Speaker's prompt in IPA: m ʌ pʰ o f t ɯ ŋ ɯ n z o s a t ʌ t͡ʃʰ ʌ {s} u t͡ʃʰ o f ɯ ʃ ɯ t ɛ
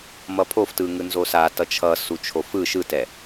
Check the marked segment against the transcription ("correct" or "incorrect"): correct